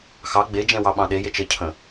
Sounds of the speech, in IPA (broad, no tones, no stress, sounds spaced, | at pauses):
x ɑ ɡ͡b e d͡ʒ ɛ̃ w ɑ ɓ ɑ̃ ɗ e j e t͡ʃ ə cʰ ə̃